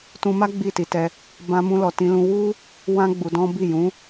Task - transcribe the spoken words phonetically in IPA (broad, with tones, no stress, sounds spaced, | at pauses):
t ũ˧ m a˦ ɡ͡b i˦˨ t i˧ t ɛ˧ | b ã˧ m ũ˧ l ɔ˨ t ĩ˧ l ũ˧ w u˦ | w ã˦ ɡ͡b u˧ d ɔ̃˦ b i˦˨ j ũ˨˦